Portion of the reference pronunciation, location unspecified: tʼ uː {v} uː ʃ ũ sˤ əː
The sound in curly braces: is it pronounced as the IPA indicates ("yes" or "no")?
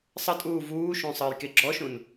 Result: yes